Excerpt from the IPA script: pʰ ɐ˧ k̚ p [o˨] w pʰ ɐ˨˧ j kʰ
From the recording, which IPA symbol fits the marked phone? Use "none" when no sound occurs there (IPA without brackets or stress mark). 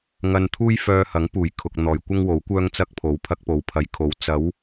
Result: o˨˥